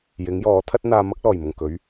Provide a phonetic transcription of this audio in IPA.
j ɪ˨˥ ŋ j ɔː˨˥ t̪ʰ ɐ˥ t̚ n̪ aː˧ m ɐ˥ k̚ l ɔː˨˩ j m ʊ˨˩ ŋ k ɵ˨˥ ɥ

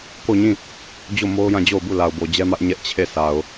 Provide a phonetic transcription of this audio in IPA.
k o˦˨ ɲ ĩ˦˨ | d͡ʑ o˦˨ m o˦ ʊ̯ j ã˦˨ d͡ʑ o˦˨ ʊ̯ b u˦˨ l a˨ ʊ̯ b o˨ d͡ʑ ɛ˦ m ä˦ ʔ ɲ ɛ˦ ʔ t͡ɕʰ e˦˨ sʰ a˨ ʊ̯

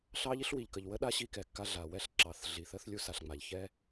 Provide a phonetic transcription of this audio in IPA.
ɬ ɑ˥ ʎ i˥ ɬ w i˩ ʎ k ə˩ ʎ w ə˥ ɗ a˥ ɕ i˥ k ɛ˩ kː a˥ ɮ a˩ w ɛ˥ ɬ ǁ ɑ˩ θ ɮ i˩ θ ə˥ θ lʲ u˥ s a˩ ɬ ŋ͡m a˩ ʎ ç ɛ˥

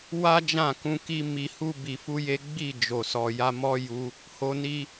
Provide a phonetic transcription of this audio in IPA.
w a˦ d͡ʒ ã˦˨ k ũ˧ k i˦ m i˧ h u˦ b i˧ f u˦ j e˦ ɡ͡b i˦˨ d͡ʒ o˨ s ɔ˨ j a˧ m ɔ˦ j u˧ | h o˧ n i˧

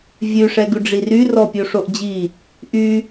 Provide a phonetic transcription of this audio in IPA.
vʲ ʉ ʂ ɛ ɡ ʉ ɖ͡ʐ i r y r ɔ pʲ o ʂ o ʔ d͡ʑ i | ʔ y

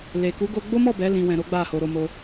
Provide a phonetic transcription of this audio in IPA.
l e˨ k u˨˦ ɡ o˧ ɡ͡b o˦ m ɔ˦˨ b ɛ˨˦ l ĩ˧ w ɛ̃˧ ɾ o˦ ɡ͡b a˦˨ h o˧ ɾ o˧ m o˧

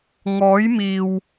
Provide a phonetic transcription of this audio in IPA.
ŋ ɔː˨˥ j m iː˨ w

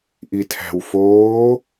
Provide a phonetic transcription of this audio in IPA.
ʔ i tʰ æ̤ w f oː

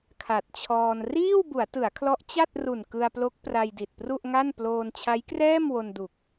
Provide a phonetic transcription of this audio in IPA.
kʰ a˨˩ t̚ t͡ɕʰ ɔː˧ n r iː˥˩ w b u˩˦ a̯ t ɯ˩˦ a̯ kʰ l ɔ˦˥ ʔ t͡ɕ a˥˩ t̚ r u˨˩ n k ɯ˧ a̯ p l o˦˥ k̚ p r a˧ j d i˨˩ t̚ p r u˥˩ ʔ ŋ a˥˩ n p l oː˧ n t͡ɕʰ a˦˥ j k r ɛː˥˩ m w o˧ n d u˨˩ k̚

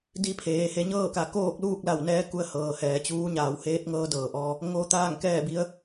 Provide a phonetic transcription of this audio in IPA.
d i˧˥ pʰ eː˩ h e˩˧ ɲ ɤː˥˨ k a˩˧ k oː˥˨ k̚ l uː˥˨ k̚ l a˧˩ w n ɛː˧˥ k u˧˥ ə̯ h ɤː˩ h ɛː˩˧ t͡ɕ uː˧˥ ɲ aː˩ w h eː˧˥ t̚ ŋ ɤː˧˥ d ɤː˩ ʔ ɔː˧ | ŋ o˧˥ t̪ aː˥˨ ŋ k ɛː˥˨ b i˧˥ ə̯

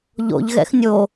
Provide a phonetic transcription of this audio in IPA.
ʎ o̰ ʎ ɣ ɛ̰ x nʲ o

